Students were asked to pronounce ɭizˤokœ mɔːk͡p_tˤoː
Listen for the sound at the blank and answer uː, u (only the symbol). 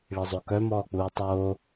uː